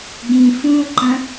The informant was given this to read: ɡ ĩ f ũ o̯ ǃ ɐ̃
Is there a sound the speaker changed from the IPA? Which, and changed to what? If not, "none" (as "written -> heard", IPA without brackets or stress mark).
none